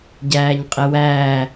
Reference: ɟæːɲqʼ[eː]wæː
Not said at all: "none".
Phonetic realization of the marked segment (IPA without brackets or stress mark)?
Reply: e